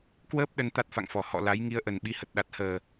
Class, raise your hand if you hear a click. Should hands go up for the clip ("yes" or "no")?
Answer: no